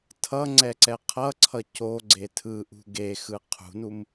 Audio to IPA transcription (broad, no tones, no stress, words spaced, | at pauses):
tʰʌŋ͡ǀɛǀɛ qʰʌǀʰʌ coɡ͡ǀe tʰɯʔṳ ɡexɯ qʰṳnum